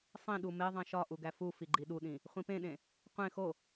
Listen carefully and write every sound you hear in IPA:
sˤ ĩ ɗ u m e ðˤ ẽ ʃ ɒ ʔ u ɡ æ f u f i ɡ͡ǃ i ɗ u ɗ ĩ | χʷ ĩ p ẽ ɗ ẽ | qʷ ẽ x o

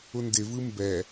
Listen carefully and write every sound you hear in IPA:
ʊ n d ɪ v ɯ m b ɛ

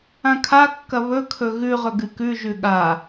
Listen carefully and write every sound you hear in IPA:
ã kʰ a kː ɐ β ɵ kʰ ɵ ɣ ʉ ʁ ɵ ɡ ɨ k ʉ ʒ ʉ ɠ a

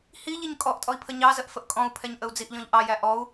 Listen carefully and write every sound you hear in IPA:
h i ʎ i ɲ kʼ ɔ ʔ tʼ ɔ i̯ pʰ ə ɲ ɑ z ə ʔ f ə ʔ kʼ ɔ̃ u̯ pʰ ɛ ɲ ʔ ə u̯ d͡z i ʔ ʎ ɔ̃ ʎ ʔ ɑ j æ ʔ ɔ u̯

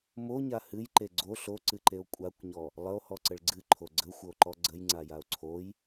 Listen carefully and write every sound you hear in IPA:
m o ɲ a h ɨ j ǃ e ɡ͡ǀ o ɬ o ǀ ɨ ǃ e o̯ kʷʼ a kʷ ɲ ɔ | lˠ ə o̯ h ɔ ǀ ə ɭ ɡ͡ǀ ɨ ǃʰ o ɡ͡ǀ ə xʷ ə o̯ ǃ ɔ ɡ͡ǀ ə j ŋ͡ǀ a j a o̯ ǀʰ o j

